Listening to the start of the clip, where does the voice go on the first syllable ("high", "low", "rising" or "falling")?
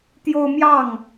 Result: high